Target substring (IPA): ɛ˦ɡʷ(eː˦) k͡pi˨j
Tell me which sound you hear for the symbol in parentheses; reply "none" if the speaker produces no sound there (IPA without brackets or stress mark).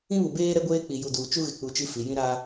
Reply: eː˦